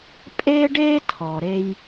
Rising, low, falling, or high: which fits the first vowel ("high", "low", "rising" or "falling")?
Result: high